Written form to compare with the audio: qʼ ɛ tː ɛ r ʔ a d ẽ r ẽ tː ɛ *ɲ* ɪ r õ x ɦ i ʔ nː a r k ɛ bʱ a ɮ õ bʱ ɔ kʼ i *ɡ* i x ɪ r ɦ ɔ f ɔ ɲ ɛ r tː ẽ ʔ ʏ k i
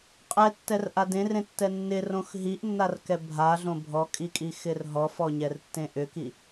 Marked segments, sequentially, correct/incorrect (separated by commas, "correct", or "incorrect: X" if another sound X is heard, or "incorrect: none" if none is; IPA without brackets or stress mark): incorrect: nː, incorrect: kʼ